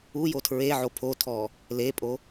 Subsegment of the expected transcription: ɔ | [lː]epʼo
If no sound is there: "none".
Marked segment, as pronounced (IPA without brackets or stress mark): l